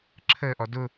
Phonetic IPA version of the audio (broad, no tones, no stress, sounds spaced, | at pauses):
ǁʰ əː ʔ ɔ d ʊ